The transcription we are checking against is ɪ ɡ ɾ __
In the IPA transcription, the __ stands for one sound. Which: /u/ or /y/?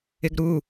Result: u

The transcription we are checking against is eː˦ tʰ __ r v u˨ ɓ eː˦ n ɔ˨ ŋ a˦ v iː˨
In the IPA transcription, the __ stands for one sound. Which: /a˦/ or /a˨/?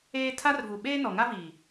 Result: a˦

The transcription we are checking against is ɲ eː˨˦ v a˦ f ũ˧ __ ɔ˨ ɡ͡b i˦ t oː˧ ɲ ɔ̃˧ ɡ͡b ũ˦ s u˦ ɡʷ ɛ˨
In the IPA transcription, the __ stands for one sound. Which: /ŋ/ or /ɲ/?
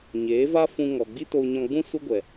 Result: ŋ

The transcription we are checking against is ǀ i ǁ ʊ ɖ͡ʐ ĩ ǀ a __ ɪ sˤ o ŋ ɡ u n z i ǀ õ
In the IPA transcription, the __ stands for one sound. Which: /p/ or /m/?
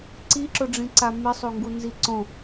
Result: m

